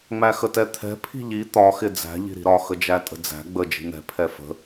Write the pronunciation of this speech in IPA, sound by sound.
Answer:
ŋ͡m æ x ə t ɛ t̪ʰ ɛ̤ pʰ i̤ ʎ i t̪ ɒ x ɪ d͡z æ̤ ʎ i̤ ɾ i̤ ɾ ɒ x ə d͡ʒ æ tʼ ə̤ d͡z æ̤ ɡ͡b ə d͡ʒ i̤ n̪ ɛ̤ pʰ ɛ f ə̤

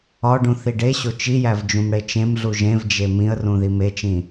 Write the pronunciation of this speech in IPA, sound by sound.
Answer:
ɒ ɖ ũ θ i ɖ e ɕ o t͡ʃ i j æ v d͡ʒ ũ m ɽ e t͡ʃ ẽ m ɮ u ʒ ẽ v d͡ʒ e m ĩ ə̯ r ũ ð i m e t͡ʃ ĩ

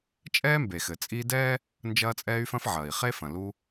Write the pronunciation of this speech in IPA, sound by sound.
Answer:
t͡ʃʼ ɛː˦ m b e˩ x ɘ˩ t͡sʼ i˦ d ɛː˥ | n d͡ʒ ɐː˦ t͡sʼ ɛː˦ y̯ f ɐ̃˦ f ʕ ɐː˩ i̯ χ e˥ f ɐ̃˩ l u˦

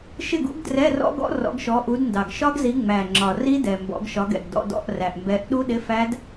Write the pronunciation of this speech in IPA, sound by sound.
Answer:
ʃ ɪ˥˨ ɡ ṵ˦˥ ɡ d r ɛ˧˥˧ r ɔ̰˦˥ ɡ ɔ̰˦˥ r ɔ̰˨˦ ɡ ʃ ɔ˨˦ ʔ u˨˦ d n d ɑ˨˩ ɡ ʃ ɒ˦˥ ɡ z i˨˦ ŋ͡m æ˨˩ ŋ͡ǁ ɒ˨˩ r i˦˥ d ɛ˨˩ m b ɔ̰˨˦ ɡ ʃ ɒ˨˦ ɡ ɛ̰˨˩ ɡ d ɔ̰˧˥˧ d ɔ̰˧˥˧ ʔ r æ˨˩ ʔ m b ɛ˨˦ ʔ ɗ u˦˥ ɗ ɪ˧˥˧ f æ˦˥ d

